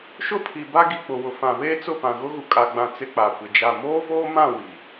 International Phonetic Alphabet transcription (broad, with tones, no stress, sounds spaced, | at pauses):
ʃ ʊ˦ pʰ i˨ b a˦ ɡ i˨ k͡p ʊ˨ w ʊ˨ f ã˨ β eː˦ t͡s ʊ˦˨ p ã˨ ɣ ʊ˦ ɣ u˨ kʼ a˦ ɡ͡b ã˦ t͡s ɪ˦ k͡p a˨ kʷ ɪ˨ d͡ʒ a˦˨ m oː˦ v oː˦ m ã˦˨ w i˨